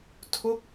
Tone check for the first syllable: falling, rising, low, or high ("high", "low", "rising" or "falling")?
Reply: falling